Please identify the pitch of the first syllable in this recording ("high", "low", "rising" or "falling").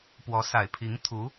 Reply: rising